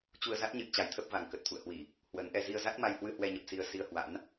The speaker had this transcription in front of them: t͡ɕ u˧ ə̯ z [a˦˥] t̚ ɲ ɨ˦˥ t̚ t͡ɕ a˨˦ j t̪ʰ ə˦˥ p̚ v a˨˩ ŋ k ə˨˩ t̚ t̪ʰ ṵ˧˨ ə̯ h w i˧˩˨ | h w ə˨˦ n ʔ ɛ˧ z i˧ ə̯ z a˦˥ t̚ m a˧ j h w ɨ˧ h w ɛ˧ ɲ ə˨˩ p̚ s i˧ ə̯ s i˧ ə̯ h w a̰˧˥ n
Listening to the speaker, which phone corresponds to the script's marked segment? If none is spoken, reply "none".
a˦˥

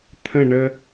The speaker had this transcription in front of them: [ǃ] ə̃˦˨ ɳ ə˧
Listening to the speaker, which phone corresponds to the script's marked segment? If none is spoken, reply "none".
t̪ʰ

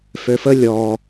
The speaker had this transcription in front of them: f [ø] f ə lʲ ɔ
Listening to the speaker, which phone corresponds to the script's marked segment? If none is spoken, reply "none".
ø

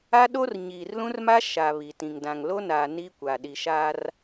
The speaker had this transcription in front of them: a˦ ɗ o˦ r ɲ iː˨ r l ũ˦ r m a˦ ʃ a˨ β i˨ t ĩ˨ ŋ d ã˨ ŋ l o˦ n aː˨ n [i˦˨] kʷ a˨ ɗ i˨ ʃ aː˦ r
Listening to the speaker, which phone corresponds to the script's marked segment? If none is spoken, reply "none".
i˦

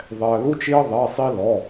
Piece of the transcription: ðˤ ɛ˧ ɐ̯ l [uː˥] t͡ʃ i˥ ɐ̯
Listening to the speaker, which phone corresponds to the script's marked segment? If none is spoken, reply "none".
u˥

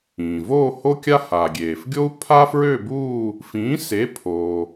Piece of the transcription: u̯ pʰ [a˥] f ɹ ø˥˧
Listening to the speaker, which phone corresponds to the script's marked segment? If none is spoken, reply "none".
a˥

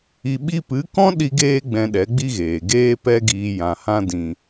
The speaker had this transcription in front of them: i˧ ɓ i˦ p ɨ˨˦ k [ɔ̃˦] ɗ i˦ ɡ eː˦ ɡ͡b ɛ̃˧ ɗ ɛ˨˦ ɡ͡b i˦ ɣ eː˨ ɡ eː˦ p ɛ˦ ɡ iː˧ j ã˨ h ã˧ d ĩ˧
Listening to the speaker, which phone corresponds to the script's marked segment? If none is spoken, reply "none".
ɔ̃˦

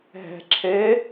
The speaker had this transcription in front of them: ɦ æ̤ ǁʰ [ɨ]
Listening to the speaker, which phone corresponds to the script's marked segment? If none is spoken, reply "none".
ɛ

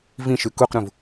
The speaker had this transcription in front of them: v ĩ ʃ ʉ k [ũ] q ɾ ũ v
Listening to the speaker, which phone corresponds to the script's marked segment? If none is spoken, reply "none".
u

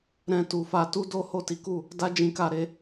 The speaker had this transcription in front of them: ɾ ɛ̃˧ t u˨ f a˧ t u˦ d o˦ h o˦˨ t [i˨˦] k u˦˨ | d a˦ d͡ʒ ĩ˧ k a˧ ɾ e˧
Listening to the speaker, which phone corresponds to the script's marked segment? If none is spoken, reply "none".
i˨˦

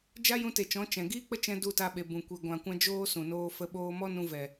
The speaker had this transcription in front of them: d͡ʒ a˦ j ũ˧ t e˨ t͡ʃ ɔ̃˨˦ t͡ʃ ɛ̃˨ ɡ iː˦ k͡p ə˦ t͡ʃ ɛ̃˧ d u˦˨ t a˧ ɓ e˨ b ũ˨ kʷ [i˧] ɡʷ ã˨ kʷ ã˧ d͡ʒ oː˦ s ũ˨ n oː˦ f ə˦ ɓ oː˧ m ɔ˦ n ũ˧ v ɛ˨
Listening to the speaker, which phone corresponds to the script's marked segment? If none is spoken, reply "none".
i˨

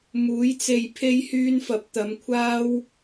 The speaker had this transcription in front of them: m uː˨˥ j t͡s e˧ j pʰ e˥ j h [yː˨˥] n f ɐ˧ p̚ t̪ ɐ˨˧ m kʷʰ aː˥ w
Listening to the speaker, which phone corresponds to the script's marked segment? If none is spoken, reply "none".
yː˥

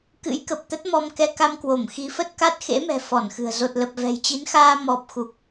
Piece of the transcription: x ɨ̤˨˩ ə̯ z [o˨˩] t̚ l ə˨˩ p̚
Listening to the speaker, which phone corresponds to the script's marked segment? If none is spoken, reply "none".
o˨˩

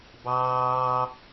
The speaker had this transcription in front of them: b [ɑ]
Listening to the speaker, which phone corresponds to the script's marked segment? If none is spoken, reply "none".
ɑː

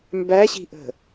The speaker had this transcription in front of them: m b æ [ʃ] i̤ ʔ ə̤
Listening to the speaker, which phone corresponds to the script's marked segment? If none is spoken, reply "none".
ɕ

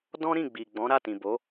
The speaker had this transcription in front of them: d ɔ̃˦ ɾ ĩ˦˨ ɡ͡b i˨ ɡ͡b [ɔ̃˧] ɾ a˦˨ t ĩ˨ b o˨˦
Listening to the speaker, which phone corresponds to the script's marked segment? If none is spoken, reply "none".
ɔ̃˨˦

